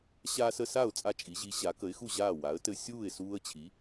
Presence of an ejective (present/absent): present